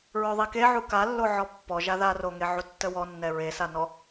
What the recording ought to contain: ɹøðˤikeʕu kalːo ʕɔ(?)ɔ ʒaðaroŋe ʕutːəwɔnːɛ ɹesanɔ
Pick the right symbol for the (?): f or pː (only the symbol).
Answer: pː